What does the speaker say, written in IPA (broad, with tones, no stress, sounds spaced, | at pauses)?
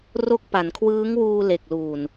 r o˦˥ k̚ p a˩˦ n kʰ w ɯː˦˥ ŋ w uː˧ l e˨˩ k̚ l uː˨˩ n